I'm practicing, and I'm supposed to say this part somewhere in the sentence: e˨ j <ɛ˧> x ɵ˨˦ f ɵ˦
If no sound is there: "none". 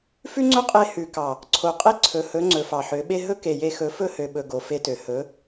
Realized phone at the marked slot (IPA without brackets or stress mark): e˧